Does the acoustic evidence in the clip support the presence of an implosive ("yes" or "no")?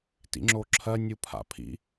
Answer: no